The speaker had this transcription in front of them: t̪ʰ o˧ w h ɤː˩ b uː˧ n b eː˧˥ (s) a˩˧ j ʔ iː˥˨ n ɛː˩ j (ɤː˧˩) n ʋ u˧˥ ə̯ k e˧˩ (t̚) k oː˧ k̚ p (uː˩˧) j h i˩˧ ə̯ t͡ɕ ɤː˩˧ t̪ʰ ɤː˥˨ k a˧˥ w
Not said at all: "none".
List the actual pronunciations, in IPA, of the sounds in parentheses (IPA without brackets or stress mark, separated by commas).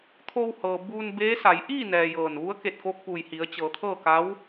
s, ɤː˧˩, t̚, uː˧˩